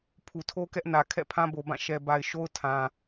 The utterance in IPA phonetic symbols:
pʰu˨tʰo˦kɛ˦ʔnä˨ kʰɛ̰˦˨pʰã˦bo˨bã˦˨ ʃɛ˨ba˨ɪ̯ʃo˦ʊ̯ tʰã˨

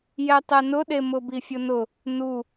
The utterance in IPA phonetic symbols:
jɛtˤɛnʊɗe mʊbifʲʊnʊ | nu

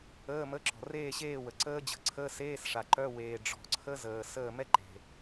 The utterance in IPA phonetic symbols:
əː˧˥˧mə˧˥˧ǁɔ̤˨ reː˥˨ɕeː˥˨wə˨ ǀəː˦˥d͡ʑə̤˨ǀʰəː˧˥˧seː˧˥˧s ʂa˨ǃœ˧˥˧ weː˨ ɖ͡ʐɔ̤˨ǀʰə˦˥zəː˨ səː˥˨ mɛ˥˨ǃe̤˨

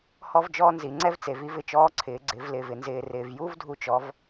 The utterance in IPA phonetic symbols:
hɔ˥vd͡ʒɔː˥ nzi˩˧ŋ͡ǀɛ˥vt͡se˩˧v i˥vɪ˧t͡ʃɔː˧˥ǀʰɪː˩˧ ɡ͡ǀɪ˩˧vlɪː˩v ɪ˩nzɪː˩ rɪː˩vju˥v dʱu˧t͡ʃɔ˩˧v

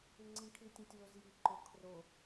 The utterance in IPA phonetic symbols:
iŋ͡ǀĩkʰitʲɛ̃tʲ wozji ǃʊ kʰro

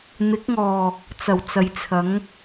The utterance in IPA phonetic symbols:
n̪ɪ˨˥k̚ŋɔː˨˩ | t͡sɐ˨˩wt͡sɐ˨˧jt͡sʰɐ˨˥ŋ

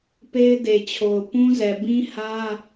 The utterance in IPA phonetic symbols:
pe˦ɪ̯de˨t͡ɕʰo˨ʊ̯ pũ˦zɛ˨ bĩ˦ hä˦

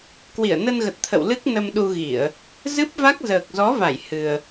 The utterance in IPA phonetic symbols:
kwi˧˩ə̯nə˧nɣə˨˩t̚ t̪ʰə̰˧˨wlɨ˦˥k̚ nə˧mɗu˧ɣi˧˩˨ə̯ | zɨ˦˥p̚va˦˥k̚ zəː˨˩k̚zɔ˨˦va˧˩j hɨ˨˩ə̯

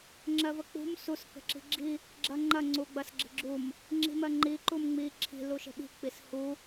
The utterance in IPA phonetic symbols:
ŋ͡ǁɜvək͡pṳm sus kə̤ǁi̤ɡ͡ǁi | ɡ͡ǁɐŋ͡ǃɐ ŋ͡ǀuɡ͡bɐsɡ͡ǁə̤ɡ͡ǁum | ŋ͡ǁi̤mɜŋ͡ǃi ǃumŋ͡mi ǁʰi̤ luʃə̤ɓi̤ k͡pishu

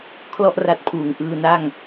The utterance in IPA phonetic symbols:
kʰlɔ˥˩ʔra˦˥t̚pʰuː˨˩ŋ ʔɯː˧na˥˩ŋ

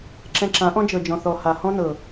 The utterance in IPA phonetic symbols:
ǁɛ̃˧ǁã˨˦ʔɔ̃˦ d͡ʒɤ˨d͡ʒɔ̃˨θɔ˨ha˨ hɔ̃˦nɤ˨

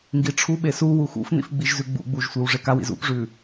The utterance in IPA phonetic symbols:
ŋɡiʈ͡ʂʰuɓe su wuxṵfnḭf ɡ͡biʒzʉɡ͡bṵɡ͡buʒ sʷiwʐekawḭz ṵpʐʉ

